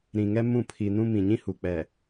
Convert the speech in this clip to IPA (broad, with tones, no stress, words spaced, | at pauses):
ɾĩ˨ŋɛ˦ mũ˦˨pʰi˨nũ˦ mĩ˨ɲĩ˦ hu˨k͡pɛ˨